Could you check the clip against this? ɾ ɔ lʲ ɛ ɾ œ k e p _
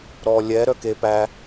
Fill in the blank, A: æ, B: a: A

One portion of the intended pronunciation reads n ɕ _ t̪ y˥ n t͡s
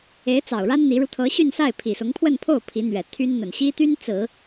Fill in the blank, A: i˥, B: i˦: A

